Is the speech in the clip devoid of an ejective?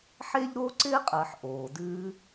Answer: no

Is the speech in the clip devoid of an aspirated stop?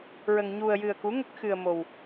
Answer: yes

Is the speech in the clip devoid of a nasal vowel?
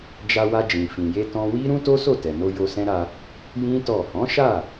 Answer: no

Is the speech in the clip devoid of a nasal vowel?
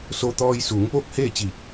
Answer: yes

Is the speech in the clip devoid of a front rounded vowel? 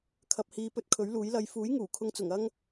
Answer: yes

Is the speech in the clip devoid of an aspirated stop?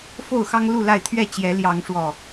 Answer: no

